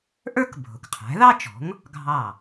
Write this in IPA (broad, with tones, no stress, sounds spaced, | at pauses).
ʔ ə˞˥ k bʱ ʊ˩ k qʰ æ̤˩˥ ð ɑ˥ t͡ʃ ɔ̤˩˥ ŋ | ɡʱ ɑ˥˩